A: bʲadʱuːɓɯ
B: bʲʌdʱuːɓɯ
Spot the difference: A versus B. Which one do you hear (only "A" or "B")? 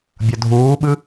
B